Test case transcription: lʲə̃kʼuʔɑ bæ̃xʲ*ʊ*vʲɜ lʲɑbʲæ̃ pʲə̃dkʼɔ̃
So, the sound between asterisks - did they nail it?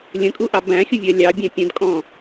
yes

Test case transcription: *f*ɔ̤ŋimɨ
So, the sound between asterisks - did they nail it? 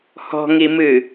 no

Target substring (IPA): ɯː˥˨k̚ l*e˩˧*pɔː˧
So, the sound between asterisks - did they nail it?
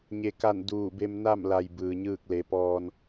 yes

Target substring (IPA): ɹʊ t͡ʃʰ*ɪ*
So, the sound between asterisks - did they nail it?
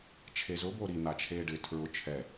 no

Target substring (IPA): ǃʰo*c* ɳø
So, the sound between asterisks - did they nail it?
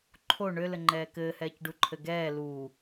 no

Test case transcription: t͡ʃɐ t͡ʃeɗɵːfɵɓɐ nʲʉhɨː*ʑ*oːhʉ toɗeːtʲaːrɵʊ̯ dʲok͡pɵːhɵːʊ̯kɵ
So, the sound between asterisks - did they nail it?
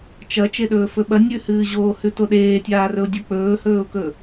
yes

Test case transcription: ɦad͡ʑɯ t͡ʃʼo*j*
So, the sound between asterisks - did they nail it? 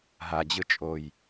yes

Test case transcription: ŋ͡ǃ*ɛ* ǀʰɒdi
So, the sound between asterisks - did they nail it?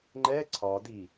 yes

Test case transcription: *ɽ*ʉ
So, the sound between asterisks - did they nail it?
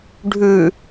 no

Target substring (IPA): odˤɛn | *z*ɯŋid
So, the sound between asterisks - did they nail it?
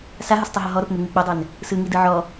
no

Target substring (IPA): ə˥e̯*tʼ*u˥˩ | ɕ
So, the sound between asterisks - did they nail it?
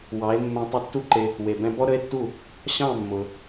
no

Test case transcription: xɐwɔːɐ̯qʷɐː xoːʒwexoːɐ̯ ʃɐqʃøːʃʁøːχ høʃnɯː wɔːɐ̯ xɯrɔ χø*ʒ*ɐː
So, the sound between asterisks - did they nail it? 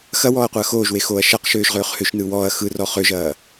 yes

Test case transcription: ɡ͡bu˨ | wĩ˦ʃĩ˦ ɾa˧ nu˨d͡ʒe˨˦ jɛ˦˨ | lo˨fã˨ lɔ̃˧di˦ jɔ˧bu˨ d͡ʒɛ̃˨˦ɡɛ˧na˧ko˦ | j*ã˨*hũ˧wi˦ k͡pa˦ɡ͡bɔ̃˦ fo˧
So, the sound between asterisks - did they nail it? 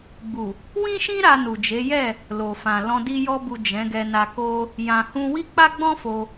yes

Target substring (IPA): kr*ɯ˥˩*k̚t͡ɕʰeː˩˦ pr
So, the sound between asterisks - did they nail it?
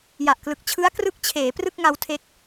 no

